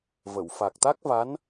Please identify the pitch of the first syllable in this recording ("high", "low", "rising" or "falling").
low